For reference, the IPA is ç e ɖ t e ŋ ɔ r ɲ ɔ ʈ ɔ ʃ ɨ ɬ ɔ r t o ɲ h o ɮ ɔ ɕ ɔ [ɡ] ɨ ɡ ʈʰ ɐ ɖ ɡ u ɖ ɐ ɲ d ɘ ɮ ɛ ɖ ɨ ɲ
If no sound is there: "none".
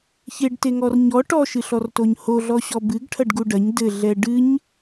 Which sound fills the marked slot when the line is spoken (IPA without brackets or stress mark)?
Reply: b